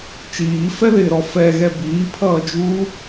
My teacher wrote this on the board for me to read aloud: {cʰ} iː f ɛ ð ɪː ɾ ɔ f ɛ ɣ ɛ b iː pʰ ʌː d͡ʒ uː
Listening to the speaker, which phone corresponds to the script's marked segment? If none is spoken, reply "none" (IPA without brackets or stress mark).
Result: t͡ʃ